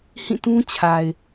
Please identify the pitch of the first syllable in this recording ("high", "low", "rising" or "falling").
falling